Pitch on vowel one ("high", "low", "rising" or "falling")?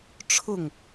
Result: falling